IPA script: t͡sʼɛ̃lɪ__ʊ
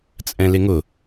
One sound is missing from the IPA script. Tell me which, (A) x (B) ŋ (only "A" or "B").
B